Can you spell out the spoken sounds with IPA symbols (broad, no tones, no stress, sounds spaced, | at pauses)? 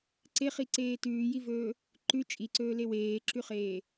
ǀ e χ i ǀ eː t ʉː j i v ɵː | ǃ ʉ t͡ʃʼ i ǀ ɵː l e w eː ǁ ʉ χ eː